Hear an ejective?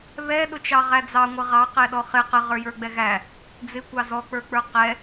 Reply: no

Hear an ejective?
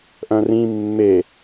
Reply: no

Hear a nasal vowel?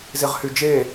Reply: no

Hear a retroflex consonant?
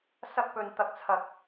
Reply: no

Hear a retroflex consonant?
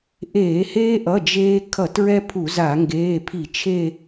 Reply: no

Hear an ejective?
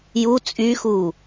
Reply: yes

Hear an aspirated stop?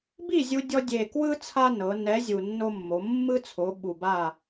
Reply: yes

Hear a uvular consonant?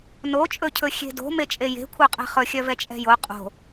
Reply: yes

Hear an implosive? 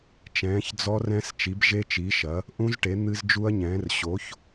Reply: no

